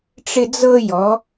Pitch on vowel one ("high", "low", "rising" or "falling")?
high